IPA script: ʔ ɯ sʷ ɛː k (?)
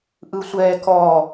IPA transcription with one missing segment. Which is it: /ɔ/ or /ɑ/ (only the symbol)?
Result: ɔ